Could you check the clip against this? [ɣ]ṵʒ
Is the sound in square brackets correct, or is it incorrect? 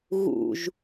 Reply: correct